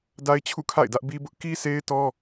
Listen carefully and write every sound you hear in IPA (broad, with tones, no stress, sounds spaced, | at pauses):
d a˦ ɪ̯ t͡ɕʰ ṵ˦˨ kʰ a̰˦˨ ɪ̯ d ä˦ ʔ b i˦ b ʊ˦ ʔ k i˦ sʰ e˦ ɪ̯ t ɔ˦